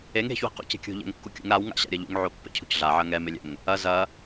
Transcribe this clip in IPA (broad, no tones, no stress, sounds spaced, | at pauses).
e ŋ e̤ ç w i̤ q ṵ c e̤ kʲ ṳ ʎ ɛ̰ ŋ kː u kʲ ṵ ŋ ɾ a w ŋ a̰ ɕ a̰ ɾʲ ɐ ʎ ṵ ŋ ʕ o pː ɛ̰ cʰ ṳ c ɮ a ʕ ɐ ŋ ɛ m e lʲ ɛ̰ ŋ | ɐ z ɐ